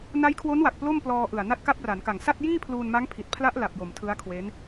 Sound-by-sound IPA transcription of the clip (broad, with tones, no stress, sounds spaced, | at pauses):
n a˦˥ j kʰ w o˦˥ n w a˨˩ k̚ p l o˥˩ m p l ɔː˧ ʔ ɯ˨˩ a̯ n a˦˥ t̚ k a˦˥ p̚ r a˩˦ n k a˨˩ ŋ s a˥˩ t̚ j iː˥˩ pʰ l uː˧ n m a˦˥ ŋ pʰ i˨˩ t̚ pʰ l a˦˥ ʔ l a˨˩ p̚ j o˩˦ m tʰ ɯ˦˥ a̯ kʰ w e˦˥ n